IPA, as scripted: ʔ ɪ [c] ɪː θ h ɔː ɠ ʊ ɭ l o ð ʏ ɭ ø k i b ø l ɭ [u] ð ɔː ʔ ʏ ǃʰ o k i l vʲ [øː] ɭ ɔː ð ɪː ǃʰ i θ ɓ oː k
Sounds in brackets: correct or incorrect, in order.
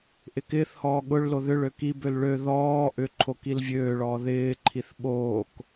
incorrect, incorrect, correct

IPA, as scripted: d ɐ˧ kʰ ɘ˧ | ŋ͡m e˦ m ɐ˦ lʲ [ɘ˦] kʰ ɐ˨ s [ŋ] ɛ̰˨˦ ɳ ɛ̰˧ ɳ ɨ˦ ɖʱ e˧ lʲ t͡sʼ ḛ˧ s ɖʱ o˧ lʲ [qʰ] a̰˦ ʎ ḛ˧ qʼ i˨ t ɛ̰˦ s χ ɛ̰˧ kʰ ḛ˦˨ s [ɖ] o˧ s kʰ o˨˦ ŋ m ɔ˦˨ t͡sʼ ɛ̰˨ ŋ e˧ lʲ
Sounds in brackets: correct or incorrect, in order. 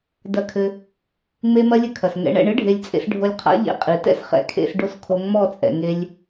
correct, correct, correct, correct

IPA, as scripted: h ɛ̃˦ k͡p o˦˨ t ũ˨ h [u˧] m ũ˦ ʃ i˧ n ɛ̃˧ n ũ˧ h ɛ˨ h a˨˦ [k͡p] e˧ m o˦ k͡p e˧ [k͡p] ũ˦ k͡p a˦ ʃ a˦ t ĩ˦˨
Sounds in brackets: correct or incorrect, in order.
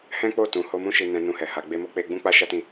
incorrect, incorrect, incorrect

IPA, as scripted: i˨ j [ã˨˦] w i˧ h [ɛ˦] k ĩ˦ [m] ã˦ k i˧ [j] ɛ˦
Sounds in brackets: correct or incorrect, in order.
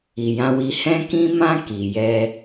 incorrect, incorrect, correct, correct

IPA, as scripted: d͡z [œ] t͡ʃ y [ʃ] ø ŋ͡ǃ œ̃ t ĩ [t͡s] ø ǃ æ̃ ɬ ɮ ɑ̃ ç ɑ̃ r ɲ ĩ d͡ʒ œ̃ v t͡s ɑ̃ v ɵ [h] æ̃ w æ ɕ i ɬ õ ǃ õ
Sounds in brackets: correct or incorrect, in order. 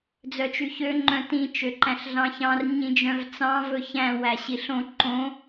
correct, incorrect, incorrect, incorrect

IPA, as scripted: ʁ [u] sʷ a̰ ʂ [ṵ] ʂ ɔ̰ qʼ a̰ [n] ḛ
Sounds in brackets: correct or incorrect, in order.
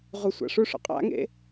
correct, incorrect, incorrect

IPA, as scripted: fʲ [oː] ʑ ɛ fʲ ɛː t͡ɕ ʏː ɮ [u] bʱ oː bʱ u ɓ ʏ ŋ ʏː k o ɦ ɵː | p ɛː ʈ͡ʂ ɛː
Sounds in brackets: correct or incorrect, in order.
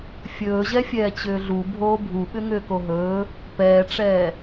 incorrect, correct

